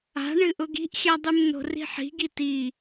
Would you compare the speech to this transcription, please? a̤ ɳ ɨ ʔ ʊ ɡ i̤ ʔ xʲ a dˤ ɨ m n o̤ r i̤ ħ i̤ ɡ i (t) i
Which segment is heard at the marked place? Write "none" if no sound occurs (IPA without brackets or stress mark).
t